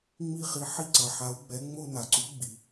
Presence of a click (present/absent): present